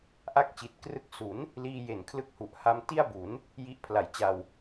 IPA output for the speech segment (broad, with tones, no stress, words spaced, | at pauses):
ʔa˥˩k̚t͡ɕi˨˩t̚ krɯ˥˩k̚ su˩˦n | liː˧je˨˩nkʰlɯ˦˥k̚ hu˨˩ʔ ha˧mti˥˩a̯bu˩˦n | ji˦˥ʔpʰla˨˩jt͡ɕa˧w